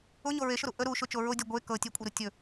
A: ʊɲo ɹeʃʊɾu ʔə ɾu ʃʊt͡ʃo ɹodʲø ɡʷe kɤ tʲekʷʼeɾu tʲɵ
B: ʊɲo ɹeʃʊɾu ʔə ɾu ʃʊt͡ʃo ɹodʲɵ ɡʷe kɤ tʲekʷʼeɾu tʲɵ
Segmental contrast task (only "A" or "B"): B